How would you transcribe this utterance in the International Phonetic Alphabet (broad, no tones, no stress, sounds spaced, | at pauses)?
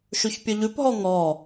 ʃ ʉ ç pʲ ɵ ʎ ʉ p ɦ ɔ ŋ ɔ